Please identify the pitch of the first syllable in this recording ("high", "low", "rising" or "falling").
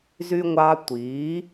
high